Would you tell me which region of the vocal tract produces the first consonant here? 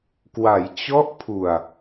velum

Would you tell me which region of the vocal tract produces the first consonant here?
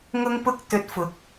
velum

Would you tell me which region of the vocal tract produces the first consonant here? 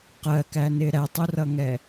uvula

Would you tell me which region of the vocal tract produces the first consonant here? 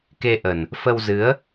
velum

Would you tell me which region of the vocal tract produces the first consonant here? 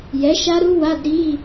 palate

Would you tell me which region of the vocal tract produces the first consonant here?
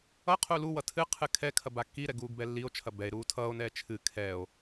uvula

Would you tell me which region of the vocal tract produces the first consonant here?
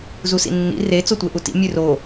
tongue tip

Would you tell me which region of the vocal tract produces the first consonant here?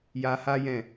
palate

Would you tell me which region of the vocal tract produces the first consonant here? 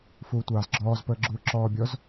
lips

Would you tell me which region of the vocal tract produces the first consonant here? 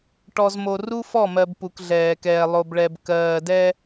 retroflex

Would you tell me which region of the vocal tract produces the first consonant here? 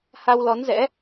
throat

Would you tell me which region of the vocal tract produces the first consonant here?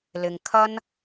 tongue tip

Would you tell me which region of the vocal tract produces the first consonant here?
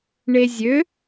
retroflex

